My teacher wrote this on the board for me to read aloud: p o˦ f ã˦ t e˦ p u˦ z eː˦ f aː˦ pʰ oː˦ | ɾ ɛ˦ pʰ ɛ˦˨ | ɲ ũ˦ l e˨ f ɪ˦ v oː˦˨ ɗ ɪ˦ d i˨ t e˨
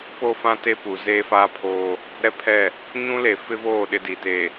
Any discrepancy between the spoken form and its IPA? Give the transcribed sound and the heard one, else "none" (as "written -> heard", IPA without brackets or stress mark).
u˦ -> u˨